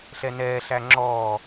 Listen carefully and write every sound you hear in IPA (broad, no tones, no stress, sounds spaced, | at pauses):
ɬ ɛ n ɛː ɬ æ ŋ͡ǁ ɔː